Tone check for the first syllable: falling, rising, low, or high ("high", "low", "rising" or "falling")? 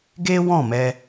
high